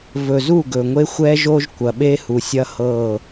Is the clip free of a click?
yes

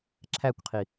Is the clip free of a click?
no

